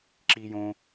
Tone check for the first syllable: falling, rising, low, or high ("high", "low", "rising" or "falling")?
high